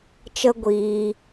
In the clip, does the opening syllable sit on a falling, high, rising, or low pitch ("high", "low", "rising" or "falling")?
high